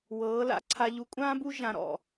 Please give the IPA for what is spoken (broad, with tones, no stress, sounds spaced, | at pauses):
w ɤː˩˧ l a̰˧ ǀʰ a˧ ʎ u˧ kʷʼ ãː˥ b u˥ ʒ ã˧ ɾ ɔ̰˧˩